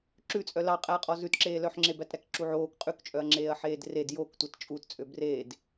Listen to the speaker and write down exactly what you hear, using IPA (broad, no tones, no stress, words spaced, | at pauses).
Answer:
ǁʉt͡sʼœ lɑqʼæɐ̯qʼɔ zʉtǁeːlœħŋ͡ǁe bætɾækǁuʕoːk qʼʉkt͡ʃʼœɐ̯ŋ͡ǁeːɐ̯ ħeːdred joktʷɛt t͡ʃʼut t͡sʼøbreːd